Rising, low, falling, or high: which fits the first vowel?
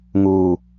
low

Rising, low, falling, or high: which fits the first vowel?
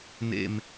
low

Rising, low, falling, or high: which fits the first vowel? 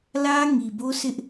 high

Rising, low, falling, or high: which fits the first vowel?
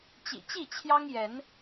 low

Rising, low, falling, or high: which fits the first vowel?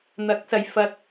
rising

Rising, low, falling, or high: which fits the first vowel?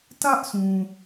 high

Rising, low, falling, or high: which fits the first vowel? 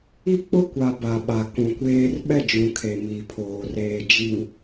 high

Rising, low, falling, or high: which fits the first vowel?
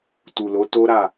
low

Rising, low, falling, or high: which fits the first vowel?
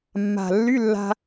low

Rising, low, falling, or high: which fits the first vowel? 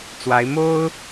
rising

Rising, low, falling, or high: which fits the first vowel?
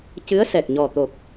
rising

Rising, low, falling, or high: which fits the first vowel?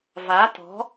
rising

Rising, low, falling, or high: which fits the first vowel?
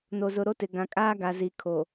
low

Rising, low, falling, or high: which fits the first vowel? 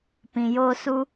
low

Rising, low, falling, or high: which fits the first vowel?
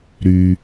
low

